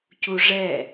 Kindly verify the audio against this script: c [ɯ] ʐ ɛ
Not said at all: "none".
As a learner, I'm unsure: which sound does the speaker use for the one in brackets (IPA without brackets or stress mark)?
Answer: u